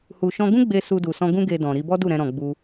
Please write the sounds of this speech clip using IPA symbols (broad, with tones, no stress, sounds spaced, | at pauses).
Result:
h u˨ ʃ ɔ̃˧ ɡ ũ˦ ɡ͡b e˧ s u˧ d u˨ s ɔ̃˧ ɡ ũ˦ ɡ e˧ d ɔ̃˨ ɾ i˧ b ɔ˦ d u˦˨ ɾ ɛ̃˧ ɾ ɔ̃˨ ɡ͡b u˧